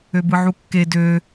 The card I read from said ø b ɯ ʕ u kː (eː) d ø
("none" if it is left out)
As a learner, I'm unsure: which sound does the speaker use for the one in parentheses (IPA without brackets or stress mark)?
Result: e